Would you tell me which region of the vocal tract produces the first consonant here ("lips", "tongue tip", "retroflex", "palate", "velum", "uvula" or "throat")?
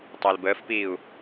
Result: tongue tip